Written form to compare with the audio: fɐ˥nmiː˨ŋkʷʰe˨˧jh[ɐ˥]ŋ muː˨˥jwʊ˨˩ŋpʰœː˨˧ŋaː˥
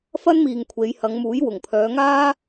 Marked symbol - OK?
no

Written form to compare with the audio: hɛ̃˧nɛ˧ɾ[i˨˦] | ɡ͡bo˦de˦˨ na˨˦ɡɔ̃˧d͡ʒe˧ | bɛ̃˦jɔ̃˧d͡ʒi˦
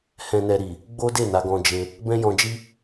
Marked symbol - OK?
no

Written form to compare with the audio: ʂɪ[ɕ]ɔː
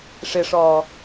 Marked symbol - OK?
no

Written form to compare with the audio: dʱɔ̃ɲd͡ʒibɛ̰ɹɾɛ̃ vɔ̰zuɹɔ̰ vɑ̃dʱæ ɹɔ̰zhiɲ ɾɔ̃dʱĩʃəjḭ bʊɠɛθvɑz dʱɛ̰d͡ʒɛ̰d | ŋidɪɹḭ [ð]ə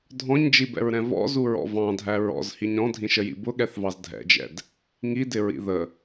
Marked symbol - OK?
yes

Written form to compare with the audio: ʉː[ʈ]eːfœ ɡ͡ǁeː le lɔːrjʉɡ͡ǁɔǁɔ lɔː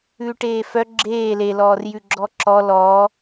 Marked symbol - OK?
yes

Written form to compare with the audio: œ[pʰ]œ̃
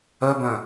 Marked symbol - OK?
no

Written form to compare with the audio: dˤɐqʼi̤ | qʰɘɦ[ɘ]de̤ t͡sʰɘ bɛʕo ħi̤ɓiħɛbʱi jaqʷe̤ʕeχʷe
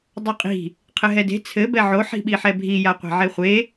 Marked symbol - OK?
no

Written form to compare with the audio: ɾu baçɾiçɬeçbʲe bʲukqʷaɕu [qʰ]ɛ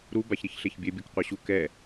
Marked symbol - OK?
no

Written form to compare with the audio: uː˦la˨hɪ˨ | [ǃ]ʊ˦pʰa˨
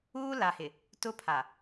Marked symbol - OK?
no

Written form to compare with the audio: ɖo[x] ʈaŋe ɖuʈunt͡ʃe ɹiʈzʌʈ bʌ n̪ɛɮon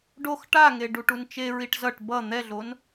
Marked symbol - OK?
yes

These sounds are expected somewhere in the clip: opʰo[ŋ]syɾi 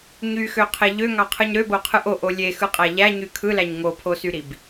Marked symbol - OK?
no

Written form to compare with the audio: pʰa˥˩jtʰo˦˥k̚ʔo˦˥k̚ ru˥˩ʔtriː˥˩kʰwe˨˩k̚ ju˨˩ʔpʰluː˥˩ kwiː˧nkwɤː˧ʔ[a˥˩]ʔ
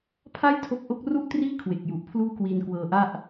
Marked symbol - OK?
yes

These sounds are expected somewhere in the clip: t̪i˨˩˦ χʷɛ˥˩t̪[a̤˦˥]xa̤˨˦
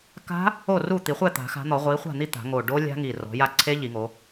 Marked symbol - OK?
no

